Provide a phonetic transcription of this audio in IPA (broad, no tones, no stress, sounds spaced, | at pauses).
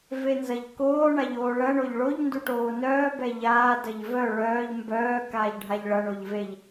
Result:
v e n z ɐ ʎ k oː ɳ a ʎ oː ɭ ɐ ɳ o ʎ ɭ o ʎ n d u ʈ oː n œː b ɛ ʎ aː d ɐ ʎ v œ ɭ œː ʎ m b œː k aː ʎ ɖʱ a ʎ ɭ ɐ ɳ o ʎ v e ʎ